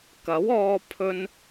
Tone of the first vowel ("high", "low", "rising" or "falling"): rising